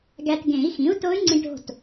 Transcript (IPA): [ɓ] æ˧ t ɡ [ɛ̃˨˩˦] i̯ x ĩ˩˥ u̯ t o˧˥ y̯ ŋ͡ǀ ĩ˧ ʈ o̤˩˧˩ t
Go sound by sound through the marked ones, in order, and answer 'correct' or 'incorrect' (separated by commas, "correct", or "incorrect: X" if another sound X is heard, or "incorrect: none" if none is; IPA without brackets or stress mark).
incorrect: ɡ, incorrect: ẽ˨˩˦